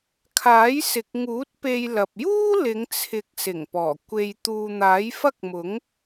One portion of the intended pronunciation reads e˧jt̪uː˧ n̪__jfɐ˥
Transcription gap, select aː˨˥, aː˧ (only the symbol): aː˨˥